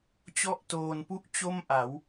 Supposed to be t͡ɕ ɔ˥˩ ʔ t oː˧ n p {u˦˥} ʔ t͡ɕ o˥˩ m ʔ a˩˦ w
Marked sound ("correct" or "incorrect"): incorrect